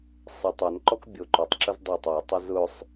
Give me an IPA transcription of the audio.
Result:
sˤ e tˤ œ n ǃ ɔ k bʲ o ǃ œ tˤ ǁ ʊ z dˤ o tˤ e tˤ ɛ z ʊ sˤ

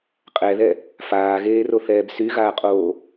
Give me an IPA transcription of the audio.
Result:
qʼ ɛ ð ɛ | f aː ɣ eː r o θ ɛː b s y ɣ aː qʼ oː

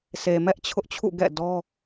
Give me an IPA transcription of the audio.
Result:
sʰ e˨ m ɛ˦ ʔ t͡ɕʰ ʊ˦ ʔ t͡ɕʰ ṵ˦˨ ɡ ɛ̰˦˨ d ɔ˦

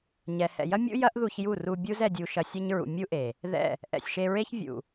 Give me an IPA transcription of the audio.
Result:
ɲ ɛ˨ h ɛ̰˨ j ɐ˦ mʲ ṵ˦ j ɐ˦ ʔ ð u˧ ç j u˦˨ r u˧ bʲ u˦ z ɛ˧ dʲ u˧ ʃ ɐ˧ sʲ ɐ˦ ɲ ɹ ṵ˨ mʲ u˦ ʔ e˨ | ð ɛ̰˦˨ | ʔ ɛ̰˨ sʲ ʃ e˧ ɹ e˦ ç vʲ ṵ˨

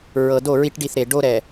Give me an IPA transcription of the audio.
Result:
ɹ ɤ˨ d o˦˨ ɹ i˦ ʈ ɖ i˦˨ θ ɾ e˨ ɖ o˦ ɾ ɛ˨

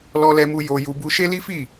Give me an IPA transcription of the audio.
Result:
l ɔ˧ l ɛ˧ m u˧ j o˧ j u˧ b u˧ ʃ e˦ l i˦ f i˦˨

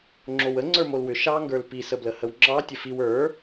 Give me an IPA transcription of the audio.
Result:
ŋ͡ǁ o w ə ŋ͡ǀ ə˞ m o l w ʏ ʃ ɑ ŋ ɡ ə˞ l p i s ə b l ə h ə w ŋ͡ǁ ɑ tʲ ə f i w ə˞

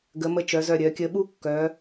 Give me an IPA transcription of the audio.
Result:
ɡ ə˩˧ m ə˧ t͡ʃ œ˩˧ z œ˧˩ ɾʲ œ˩˧ kʲ ə˧ ɓ u˥ kː œ˩˧

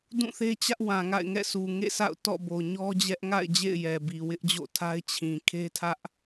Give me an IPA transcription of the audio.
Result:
d ũ˦˨ θ e˦ t͡ɕ ä˦ ʔ w ã˨ ŋ a̰˦˨ ɪ̯ ŋ ɛ̰˦˨ sʰ u˨ ŋ ḛ˦˨ sʰ a̰˦˨ ʊ̯ t ɔ̰˦˨ b o˨ ɲ ɔ˦ d͡ʑ ɛ˦ ʔ ŋ a̰˦˨ ɪ̯ d͡ʑ ḛ˦˨ ɪ̯ j ɛ˨ b i˨ w ɪ˦ ʔ d͡ʑ o̰˦˨ tʰ a˦ ɪ̯ t͡ɕʰ ĩ˨ kʰ e˦ tʰ ä˦ ʔ

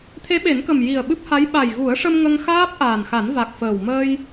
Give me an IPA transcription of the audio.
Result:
t̪ʰ e˧˥ ɓ e˨˩˦ n k ə˨˩ m j i˨˩ ə̯ ɓ ɨ˦˥ p̚ h a˧˥ j ɓ a˨˩ j ɣ u˨˩˦ ə̯ ʂ ə˧ m ŋ ə˧ ŋ x aː˦˥ p̚ ʔ aː˨˩ n x a˨˩˦ n v a˨˩ k̚ f əː˨˩ w m əː˧ j

